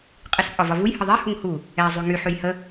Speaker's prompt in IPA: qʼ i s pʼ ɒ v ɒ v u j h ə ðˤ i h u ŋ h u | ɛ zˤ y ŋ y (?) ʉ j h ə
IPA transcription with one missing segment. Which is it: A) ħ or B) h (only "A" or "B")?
A